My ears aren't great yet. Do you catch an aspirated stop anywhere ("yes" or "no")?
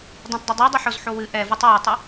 no